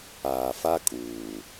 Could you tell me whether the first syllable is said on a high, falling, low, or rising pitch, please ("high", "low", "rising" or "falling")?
low